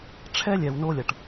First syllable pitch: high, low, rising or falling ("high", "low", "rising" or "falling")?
high